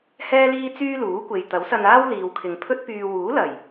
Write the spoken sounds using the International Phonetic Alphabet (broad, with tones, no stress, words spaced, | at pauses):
hɛː˥liː˥t͡syː˥ luː˨˥kʷe˨j t̪ɐ˨˥wsɐ˧naː˥w liː˨wkʰɪ˨ŋpʰɵ˥t̚pyː˧ wuː˨˥lɐ˨˩j